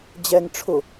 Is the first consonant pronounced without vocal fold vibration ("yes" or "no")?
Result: no